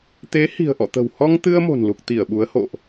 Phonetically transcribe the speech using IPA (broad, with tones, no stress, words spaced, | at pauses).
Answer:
t̪e˨˦hi̤˨˩ə̯ʔɔ̰˧˨t̪ə̤˨˩w hɔ˧ŋt̪ɨ˧ə̯ mo̤˨˩nlu˨˩k̚ t̪i˧˩ə̯ɓu˨˦ə̯ ho̰˧˨ʔ